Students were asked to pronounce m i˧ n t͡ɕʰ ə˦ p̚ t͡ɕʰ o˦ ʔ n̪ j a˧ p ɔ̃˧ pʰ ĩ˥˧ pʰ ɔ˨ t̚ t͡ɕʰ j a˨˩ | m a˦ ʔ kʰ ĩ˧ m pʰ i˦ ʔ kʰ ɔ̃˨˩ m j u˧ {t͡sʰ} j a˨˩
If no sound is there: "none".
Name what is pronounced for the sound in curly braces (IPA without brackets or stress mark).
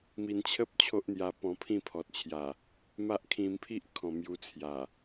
t͡sʰ